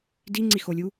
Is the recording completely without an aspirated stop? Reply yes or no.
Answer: yes